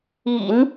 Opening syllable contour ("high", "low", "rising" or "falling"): low